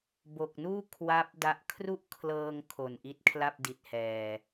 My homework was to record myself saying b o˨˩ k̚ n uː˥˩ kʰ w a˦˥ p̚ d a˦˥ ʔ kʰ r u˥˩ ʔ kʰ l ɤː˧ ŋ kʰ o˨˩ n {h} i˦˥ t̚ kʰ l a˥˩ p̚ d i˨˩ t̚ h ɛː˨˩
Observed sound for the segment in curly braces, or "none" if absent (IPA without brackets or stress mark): ʔ